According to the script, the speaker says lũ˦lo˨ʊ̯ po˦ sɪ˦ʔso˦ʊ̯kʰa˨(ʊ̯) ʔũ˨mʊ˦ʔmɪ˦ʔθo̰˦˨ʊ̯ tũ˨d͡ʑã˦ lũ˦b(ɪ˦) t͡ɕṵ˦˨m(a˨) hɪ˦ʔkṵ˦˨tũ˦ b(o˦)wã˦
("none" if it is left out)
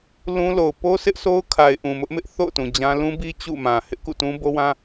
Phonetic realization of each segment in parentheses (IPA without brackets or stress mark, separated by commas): ɪ̯, i˦, ã˨, o˦